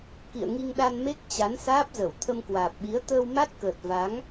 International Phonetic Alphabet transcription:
kḭ˧˨ə̯ ŋi˧ŋɗa˧nme˦˥k̚ t͡ɕa˨˦nsaː˦˥p̚ zə˧˩w t̪ʰə˧mkwaː˨˩p̚ɓi˨˦ə̯ t̪əː˧wma˦˥t̚kəː˨˩t̚ va˨˦ŋ

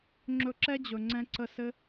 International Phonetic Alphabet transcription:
ŋ͡ǁɵ˧ǁɛ˦d͡ʑɵ˨ ŋ͡ǀɛ̃˧ǀə˧sɘ˦

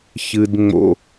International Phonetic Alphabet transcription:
çɨ˨d ŋ͡mo̰˨

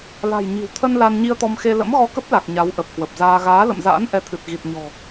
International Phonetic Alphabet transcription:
la̤˨˩j ɲi̤˨˩wt̪ʰə˧n la˧nɲi˧ə̯t̪ɔ˧mxe˧ lə̰˧˥mɣɔ˧kə˦˥p̚la˨˩k̚ ɲa˨˦wʔə˨˩p̚kwə˨˩p̚zaː˧ ɣaː˨˦lə̰˧˨mza̰ː˧˥n ʔɛ˨˦t̪ʰɨ˨˩t̚ ɣi˨˩t̚ɲɔ̤˨˩

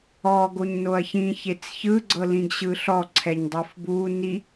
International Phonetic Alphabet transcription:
ɔɡoɲ noɐ̯çĩ çet͡sçɯɡ͡ǀɤlĩɡ ɕɯɬɔ ǀʰɛɲdˤɤfbu ni

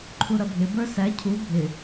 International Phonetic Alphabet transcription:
ǃʰuɾʌbʱɪ bə˞sæ cʰu bʱɪ

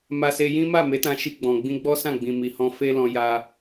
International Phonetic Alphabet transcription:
ma˧se˧jĩ˦ ma˦˨me˨˦ tã˧ʃi˧ɡ͡bɔ̃˨ ɡ͡bĩ˧ɡ͡bɔ˦sã˦˨ɡ͡bĩ˨ mi˨ hɔ̃˧fe˦lɔ̃˧ ja˧

